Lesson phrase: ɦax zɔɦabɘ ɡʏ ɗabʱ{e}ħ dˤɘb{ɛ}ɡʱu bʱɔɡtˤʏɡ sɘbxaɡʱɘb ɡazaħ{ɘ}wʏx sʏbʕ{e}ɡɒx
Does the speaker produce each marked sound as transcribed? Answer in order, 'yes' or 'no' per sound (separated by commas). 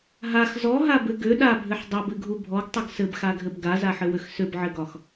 no, no, yes, no